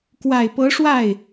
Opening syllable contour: low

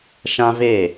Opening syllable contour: high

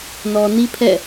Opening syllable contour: low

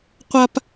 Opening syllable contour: high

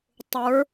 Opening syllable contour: rising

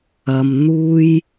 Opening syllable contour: low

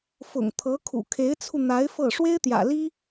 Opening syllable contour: low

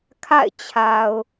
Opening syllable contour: falling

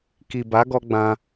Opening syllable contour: low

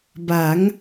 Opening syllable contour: rising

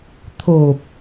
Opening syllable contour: low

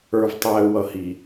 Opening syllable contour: low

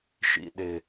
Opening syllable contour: low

